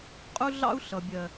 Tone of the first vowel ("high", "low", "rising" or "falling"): high